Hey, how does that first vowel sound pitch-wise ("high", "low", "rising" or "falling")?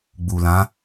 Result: low